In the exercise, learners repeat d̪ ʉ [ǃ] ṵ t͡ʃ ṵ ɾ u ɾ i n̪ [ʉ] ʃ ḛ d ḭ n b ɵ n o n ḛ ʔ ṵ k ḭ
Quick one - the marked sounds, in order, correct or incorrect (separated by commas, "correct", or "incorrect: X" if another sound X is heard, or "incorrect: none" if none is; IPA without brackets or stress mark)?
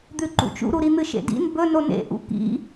correct, incorrect: ɨ